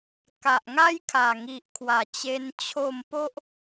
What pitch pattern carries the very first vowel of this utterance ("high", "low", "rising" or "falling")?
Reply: low